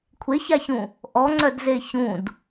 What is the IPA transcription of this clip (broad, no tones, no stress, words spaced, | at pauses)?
kʷʰeçaçũ | ʔɔŋ͡ǀœdze çũd